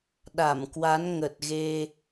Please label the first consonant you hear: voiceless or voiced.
voiced